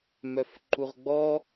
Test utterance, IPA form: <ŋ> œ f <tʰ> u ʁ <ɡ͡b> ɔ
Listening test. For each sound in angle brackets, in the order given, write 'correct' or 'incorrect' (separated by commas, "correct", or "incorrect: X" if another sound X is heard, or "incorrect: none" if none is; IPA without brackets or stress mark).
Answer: incorrect: m, incorrect: ǃ, correct